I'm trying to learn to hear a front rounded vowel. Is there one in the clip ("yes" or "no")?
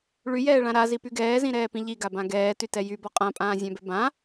yes